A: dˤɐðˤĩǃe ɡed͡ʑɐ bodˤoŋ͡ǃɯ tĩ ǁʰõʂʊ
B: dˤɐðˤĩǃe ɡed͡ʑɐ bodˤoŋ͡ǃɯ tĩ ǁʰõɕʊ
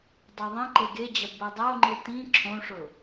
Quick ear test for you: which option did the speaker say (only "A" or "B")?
A